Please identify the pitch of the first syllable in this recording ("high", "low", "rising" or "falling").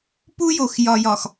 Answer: high